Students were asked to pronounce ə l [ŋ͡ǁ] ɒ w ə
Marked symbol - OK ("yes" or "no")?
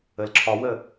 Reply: no